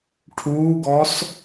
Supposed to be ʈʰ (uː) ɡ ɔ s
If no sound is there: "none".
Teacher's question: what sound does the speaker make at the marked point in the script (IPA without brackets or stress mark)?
uː